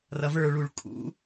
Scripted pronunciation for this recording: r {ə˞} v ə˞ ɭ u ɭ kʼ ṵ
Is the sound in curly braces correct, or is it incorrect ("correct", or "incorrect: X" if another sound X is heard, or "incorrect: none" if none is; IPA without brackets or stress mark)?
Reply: incorrect: ʌ